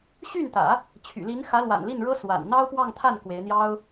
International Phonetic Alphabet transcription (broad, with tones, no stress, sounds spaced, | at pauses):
ɕ y˥˩ n t̪ ä̰˨˩˦ | t͡ɕʰ y̰˨˩ l i˧˥ n x ä˧˥ l w a̰˨˩ n l i˥˩ n ɻ ɤ˥ s w a̰˨˩ n n̪ ɑ˥ ʊ̯ p w ɑ˥˧ ŋ t̪ʰ a˥˩ n k w e˧˥ ɪ̯ n̪ j ɑ˥ ʊ̯